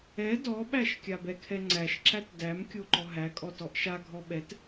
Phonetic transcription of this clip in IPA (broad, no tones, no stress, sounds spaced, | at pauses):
ɛ d ɔ ɓ æ ʃ kʲ a b ɛ kʰ ɛ ŋ͡ǀ æ ʃ ǁ æ t d æ m kʲ o ǃ ɔ ɦ æ kʼ ɔ t ɔ ʔ ʃ a ɡʱ ɔ ɓ ɛ t